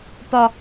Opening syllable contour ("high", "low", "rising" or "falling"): low